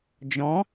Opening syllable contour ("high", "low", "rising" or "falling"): rising